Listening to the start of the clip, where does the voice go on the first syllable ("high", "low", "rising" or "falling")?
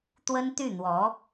high